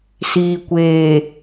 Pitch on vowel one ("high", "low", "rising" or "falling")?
low